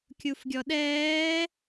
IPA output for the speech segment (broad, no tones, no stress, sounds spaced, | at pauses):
kʲ u f ɡʲ ɔ ɗ ɛː